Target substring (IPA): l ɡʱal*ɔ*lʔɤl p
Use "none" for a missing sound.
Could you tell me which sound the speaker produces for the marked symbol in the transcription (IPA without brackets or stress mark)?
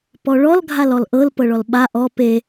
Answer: ɔ